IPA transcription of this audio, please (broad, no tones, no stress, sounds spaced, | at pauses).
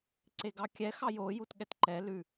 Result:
ǀ e ɡ ɑ kʲ ɛ x ɑ j o j u t ɠ ɛ t ǃ ɛ l ʉ